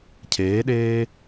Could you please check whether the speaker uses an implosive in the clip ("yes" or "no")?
yes